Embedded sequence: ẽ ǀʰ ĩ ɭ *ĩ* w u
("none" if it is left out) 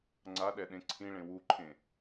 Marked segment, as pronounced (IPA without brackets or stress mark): ẽ